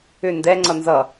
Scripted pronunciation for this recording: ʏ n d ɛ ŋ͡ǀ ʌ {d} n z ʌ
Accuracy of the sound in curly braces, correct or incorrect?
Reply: incorrect